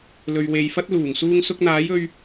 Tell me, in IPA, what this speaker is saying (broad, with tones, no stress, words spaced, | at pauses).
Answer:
lɵ˨ɥwe˨jfɐ˥t̚luː˨˩ŋ suː˧ŋsʊ˧k̚n̪aː˨˥j ɵ˧ɥ